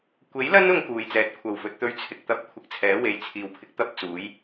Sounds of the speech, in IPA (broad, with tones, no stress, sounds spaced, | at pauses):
kʷ e˨˥ j l ɐ˥ n ʊ˧ ŋ k uː˨ j t͡s ɛː˨˥ t̚ kʷʰ ɐ˨ w f ɵ˨˥ t̚ t̪ ɵ˥ ɥ t͡sʰ ɪ˨ k̚ t̪ ɐ˥ p̚ kʷʰ ɪ˧ k̚ t͡sʰ ɛː˨˥ w e˨˧ j t͡sʰ iː˨ w pʰ ɪ˧ k̚ t̪ ɐ˥ p̚ t͡s uː˨˥ j